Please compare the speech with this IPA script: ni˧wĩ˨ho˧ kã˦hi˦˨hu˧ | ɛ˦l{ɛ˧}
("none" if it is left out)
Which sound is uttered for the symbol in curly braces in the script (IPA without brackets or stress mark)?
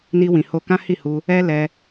ɛ˧